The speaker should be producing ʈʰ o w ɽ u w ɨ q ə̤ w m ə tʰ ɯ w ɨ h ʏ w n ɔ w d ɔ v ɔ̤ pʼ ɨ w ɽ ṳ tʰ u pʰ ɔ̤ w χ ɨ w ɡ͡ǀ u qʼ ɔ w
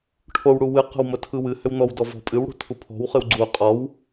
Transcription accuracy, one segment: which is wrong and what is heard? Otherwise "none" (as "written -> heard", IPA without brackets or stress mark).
none